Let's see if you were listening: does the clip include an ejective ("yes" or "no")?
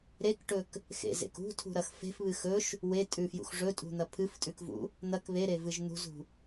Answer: yes